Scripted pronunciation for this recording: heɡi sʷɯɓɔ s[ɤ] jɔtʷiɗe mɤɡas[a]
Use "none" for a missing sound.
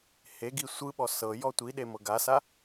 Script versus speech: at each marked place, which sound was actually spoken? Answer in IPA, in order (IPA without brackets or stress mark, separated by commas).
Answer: ɤ, a